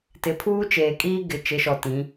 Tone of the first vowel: rising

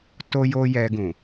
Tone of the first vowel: high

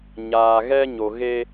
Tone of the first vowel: low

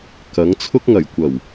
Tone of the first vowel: rising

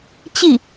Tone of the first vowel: falling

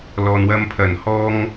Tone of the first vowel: low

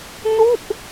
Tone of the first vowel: falling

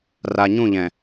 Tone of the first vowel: low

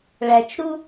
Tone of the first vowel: low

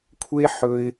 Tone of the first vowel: high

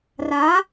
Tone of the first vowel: rising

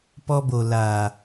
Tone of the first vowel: high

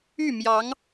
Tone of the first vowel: falling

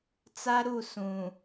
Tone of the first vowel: high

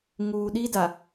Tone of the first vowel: low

